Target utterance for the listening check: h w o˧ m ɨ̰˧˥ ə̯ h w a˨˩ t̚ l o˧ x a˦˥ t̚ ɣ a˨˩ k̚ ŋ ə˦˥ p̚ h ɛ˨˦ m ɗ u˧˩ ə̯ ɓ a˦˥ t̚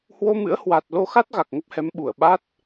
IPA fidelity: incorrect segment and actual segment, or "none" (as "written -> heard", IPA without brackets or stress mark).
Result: ɗ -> ɓ